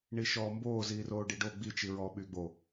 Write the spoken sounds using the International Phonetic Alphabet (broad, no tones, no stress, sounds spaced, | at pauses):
ɳ i ʃ ɔː m b oː z iː r oː ɖ i ɖ o ɡ͡b i t͡ʃ i ɹ ɔː ɓ y ɡ͡b o